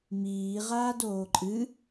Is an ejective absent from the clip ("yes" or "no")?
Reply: no